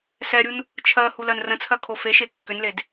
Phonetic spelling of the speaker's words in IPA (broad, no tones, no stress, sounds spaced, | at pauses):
s ɛ ɾʲ u n | t͡ʃʰ ɜ h u l ɜ n r ə̃ t͡sʰ ɜ kʰ o f e ʃ e kː ʏ n l e d